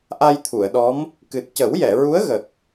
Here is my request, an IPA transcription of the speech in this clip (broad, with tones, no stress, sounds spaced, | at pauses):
ʔ a˧ j t̪ʰ u˨˩˨ ə̯ ɗ ɔ˧˥ m | k ɨ˨˩ t̚ c ə˨˩˦ w j ɛ˨˩˨ ɹ u˧˥ ə̯ ɣ ə˨˩ k̚